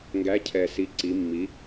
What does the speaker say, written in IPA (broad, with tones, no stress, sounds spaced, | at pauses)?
ŋ ɡ æ˨˥ cʰ ɛ˨˩ s i˨˥ ǀ i˨˥ mː i˨˥